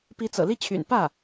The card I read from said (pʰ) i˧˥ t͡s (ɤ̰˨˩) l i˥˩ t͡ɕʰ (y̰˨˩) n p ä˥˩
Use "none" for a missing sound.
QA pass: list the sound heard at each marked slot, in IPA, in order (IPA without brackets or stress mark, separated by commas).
p, ɤ̰˨˩, y̰˨˩